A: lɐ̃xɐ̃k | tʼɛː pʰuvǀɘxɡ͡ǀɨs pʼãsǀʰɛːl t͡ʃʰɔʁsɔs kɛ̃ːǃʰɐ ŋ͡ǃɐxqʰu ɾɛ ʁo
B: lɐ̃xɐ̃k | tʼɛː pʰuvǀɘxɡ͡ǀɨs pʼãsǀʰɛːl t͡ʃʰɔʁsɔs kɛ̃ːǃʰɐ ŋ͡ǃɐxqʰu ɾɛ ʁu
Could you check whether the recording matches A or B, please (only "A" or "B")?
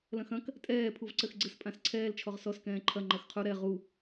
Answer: B